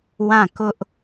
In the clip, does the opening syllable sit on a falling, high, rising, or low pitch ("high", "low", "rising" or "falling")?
falling